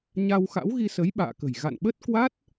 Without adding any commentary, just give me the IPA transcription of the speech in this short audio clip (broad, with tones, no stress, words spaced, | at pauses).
ɲa˧w xa̰˧˥wɣi˧sə˨˦j ɓa̰ː˧˨kə̤˨˩j ɣa̰˧˨nɓə˦˥t̚ kwa˦˥t̚